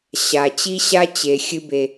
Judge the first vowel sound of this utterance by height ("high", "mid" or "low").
low